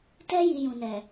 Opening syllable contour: high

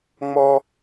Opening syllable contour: high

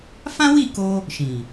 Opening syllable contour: high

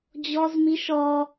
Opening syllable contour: high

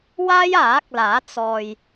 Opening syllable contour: high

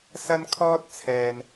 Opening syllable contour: high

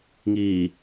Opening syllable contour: low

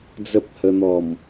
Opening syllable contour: high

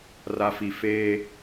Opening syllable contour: low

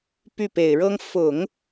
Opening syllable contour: falling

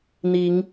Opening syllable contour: rising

